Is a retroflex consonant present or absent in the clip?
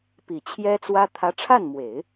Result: present